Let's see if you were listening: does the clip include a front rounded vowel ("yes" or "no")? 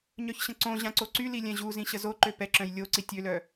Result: yes